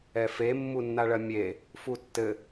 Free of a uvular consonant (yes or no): yes